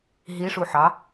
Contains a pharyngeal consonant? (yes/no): yes